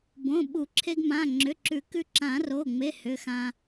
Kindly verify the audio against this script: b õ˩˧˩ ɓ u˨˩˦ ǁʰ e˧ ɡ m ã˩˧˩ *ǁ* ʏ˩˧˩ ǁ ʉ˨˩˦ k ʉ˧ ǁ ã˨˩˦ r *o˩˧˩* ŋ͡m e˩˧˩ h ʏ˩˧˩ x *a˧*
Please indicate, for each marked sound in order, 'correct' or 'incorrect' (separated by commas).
incorrect, correct, incorrect